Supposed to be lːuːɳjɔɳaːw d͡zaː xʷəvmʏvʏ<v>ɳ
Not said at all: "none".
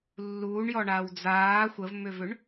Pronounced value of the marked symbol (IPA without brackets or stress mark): none